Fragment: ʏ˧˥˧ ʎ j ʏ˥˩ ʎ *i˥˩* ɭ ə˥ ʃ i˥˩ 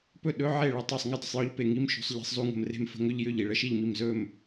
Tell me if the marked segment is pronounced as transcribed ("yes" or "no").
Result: yes